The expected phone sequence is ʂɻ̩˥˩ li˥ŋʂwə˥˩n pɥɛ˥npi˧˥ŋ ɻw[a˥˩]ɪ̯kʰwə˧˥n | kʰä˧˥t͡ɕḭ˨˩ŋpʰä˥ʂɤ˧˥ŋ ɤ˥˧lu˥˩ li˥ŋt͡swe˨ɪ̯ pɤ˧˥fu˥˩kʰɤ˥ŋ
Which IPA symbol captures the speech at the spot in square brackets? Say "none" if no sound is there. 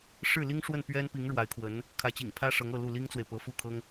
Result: a˧˥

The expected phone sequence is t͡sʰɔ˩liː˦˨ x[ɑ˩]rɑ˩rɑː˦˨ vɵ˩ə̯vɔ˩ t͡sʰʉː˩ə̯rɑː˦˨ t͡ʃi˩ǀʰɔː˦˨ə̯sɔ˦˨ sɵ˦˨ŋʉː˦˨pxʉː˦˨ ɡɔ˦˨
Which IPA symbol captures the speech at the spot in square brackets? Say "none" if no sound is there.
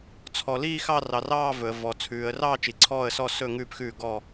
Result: ɑ˦˨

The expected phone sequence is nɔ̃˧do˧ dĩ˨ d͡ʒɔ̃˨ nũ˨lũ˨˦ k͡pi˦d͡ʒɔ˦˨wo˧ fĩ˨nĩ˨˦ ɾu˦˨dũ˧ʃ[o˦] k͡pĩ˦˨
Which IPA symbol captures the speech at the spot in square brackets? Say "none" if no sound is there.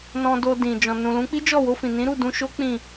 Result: o˦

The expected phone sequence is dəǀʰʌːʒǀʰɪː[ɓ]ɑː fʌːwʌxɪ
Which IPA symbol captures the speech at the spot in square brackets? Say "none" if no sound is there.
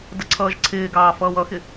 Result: ɡ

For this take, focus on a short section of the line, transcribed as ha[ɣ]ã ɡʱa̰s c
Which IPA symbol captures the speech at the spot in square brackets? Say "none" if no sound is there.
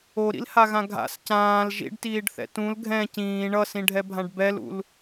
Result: ɣ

